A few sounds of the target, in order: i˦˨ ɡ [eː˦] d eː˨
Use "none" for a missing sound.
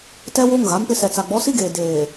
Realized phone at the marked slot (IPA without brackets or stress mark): eː˨